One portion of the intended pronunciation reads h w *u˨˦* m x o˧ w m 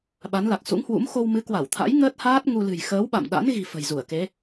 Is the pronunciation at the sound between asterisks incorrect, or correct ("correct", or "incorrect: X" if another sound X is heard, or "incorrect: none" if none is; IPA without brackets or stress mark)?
incorrect: ṵ˧˥